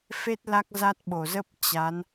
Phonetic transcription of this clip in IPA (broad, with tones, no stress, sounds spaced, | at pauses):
f e˦˥ t̚ l a˦˥ k̚ z a˦˥ t̚ ɓ o˨˩ z ə˦˥ p̚ t͡ɕ a˨˦ n